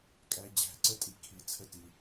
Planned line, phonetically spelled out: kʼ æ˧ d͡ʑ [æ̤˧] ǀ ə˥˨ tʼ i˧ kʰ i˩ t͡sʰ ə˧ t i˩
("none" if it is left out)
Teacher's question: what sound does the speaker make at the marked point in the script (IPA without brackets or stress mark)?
æ̤˧